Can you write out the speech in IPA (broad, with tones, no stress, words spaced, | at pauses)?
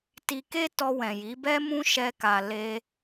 ti˧ke˦tɔ˧wɛ̃˨ ji˨˦bɛ˦mũ˦ ʃɛ˧ka˨ le˧